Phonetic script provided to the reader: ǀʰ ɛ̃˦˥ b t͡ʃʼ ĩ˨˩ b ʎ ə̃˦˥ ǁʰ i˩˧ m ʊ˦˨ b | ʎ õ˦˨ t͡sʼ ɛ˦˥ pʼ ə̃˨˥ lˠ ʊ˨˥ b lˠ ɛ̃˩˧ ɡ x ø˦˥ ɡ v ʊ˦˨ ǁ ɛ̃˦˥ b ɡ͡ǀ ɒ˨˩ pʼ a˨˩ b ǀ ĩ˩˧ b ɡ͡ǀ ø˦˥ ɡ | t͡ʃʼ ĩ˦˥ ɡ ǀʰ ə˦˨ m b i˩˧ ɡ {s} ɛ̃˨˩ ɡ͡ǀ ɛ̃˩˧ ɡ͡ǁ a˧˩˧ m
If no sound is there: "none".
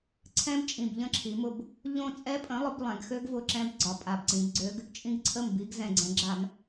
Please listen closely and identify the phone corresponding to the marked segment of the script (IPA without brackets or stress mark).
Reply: z